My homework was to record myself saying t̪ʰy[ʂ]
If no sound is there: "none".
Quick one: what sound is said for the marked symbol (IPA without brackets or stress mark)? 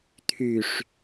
ʂ